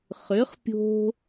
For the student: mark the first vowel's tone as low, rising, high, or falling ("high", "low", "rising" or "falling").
rising